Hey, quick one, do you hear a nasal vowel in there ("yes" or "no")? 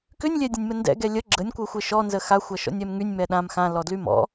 yes